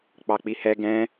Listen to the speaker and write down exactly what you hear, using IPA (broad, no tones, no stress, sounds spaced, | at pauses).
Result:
k͡p ɑ k͡p i h ɛ ɡ ɛ̃